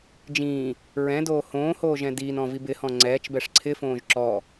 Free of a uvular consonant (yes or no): yes